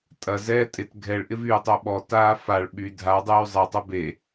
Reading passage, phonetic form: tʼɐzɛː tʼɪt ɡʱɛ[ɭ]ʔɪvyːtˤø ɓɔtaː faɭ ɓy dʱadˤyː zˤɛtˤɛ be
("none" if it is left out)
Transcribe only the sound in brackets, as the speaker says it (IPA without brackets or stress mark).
ɭ